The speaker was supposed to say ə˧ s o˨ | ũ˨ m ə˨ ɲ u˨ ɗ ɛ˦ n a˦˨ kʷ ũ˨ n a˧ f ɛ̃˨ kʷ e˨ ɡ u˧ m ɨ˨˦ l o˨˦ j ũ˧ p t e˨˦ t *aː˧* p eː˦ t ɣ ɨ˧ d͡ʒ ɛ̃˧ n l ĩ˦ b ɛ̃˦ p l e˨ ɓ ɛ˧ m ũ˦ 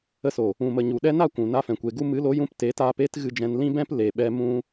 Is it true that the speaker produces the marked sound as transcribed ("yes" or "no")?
yes